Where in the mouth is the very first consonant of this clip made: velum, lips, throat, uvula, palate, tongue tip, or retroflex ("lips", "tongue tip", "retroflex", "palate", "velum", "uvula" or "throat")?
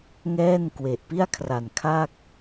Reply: velum